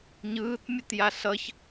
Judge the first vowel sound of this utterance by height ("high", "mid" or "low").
high